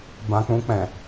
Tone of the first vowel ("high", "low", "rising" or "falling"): low